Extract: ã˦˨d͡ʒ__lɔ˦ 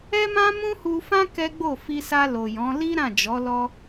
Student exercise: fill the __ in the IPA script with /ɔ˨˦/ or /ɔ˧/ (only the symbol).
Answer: ɔ˨˦